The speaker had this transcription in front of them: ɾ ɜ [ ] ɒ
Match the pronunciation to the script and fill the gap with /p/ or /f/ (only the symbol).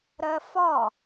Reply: f